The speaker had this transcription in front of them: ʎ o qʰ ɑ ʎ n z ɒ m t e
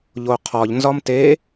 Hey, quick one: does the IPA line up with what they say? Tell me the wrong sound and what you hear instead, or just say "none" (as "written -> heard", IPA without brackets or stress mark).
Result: ɑ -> ɒ